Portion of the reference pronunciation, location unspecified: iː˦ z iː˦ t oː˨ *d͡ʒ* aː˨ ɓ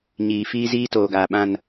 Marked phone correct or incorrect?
incorrect